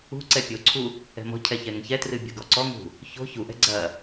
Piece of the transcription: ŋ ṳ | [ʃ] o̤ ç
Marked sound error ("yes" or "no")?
yes